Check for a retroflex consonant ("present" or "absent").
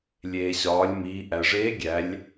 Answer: present